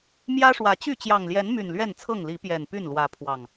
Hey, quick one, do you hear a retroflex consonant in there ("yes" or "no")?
yes